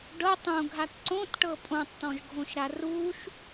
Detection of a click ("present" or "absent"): present